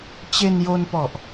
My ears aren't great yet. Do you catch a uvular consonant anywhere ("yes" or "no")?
no